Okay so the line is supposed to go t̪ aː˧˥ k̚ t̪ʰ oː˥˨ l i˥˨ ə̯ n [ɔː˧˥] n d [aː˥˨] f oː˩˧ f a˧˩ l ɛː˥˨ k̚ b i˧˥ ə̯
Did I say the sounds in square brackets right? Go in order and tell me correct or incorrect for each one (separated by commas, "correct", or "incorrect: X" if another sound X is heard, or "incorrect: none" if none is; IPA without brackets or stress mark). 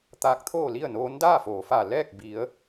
incorrect: oː˧˥, correct